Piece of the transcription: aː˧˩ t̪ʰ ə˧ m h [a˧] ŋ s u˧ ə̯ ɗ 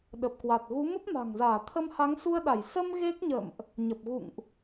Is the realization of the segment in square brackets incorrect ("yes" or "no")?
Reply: yes